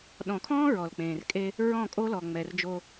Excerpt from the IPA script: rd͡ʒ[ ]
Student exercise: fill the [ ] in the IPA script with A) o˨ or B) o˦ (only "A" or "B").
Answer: B